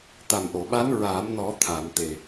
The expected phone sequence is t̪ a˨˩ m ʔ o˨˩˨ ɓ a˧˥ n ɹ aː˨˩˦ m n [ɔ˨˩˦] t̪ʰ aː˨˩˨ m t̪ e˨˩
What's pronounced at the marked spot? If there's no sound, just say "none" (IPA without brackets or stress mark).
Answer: ɔ˨˩˦